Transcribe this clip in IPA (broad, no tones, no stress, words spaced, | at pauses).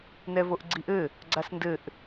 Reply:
nɛvoʔɡ͡ǀiʔɘ | ɡ͡ǀasndɘʔ